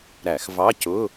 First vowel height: low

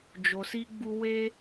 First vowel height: mid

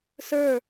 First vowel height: mid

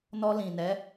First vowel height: mid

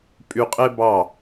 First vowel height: high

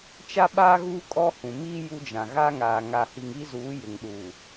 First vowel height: low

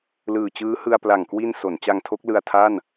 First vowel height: high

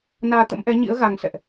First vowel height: low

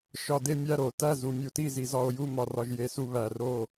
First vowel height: low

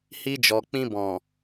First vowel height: high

